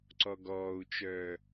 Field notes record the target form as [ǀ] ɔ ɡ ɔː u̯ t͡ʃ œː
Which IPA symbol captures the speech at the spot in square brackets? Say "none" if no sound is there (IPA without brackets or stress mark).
ǀ